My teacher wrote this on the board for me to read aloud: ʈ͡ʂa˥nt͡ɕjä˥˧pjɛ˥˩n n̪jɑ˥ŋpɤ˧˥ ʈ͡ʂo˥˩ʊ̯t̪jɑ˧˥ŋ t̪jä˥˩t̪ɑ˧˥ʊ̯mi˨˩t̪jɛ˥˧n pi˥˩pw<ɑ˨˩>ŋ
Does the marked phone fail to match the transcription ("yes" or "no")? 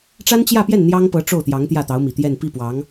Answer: yes